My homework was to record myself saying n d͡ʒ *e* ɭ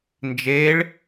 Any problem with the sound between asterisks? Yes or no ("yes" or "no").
no